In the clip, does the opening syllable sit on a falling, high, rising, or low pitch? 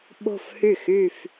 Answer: falling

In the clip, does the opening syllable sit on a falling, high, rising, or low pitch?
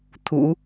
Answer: low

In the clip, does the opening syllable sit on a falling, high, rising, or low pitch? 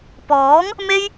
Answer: rising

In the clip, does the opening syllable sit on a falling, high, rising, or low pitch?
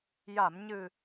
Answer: low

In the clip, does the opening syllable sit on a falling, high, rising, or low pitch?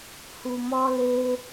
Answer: low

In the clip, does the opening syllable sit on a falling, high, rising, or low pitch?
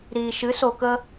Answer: low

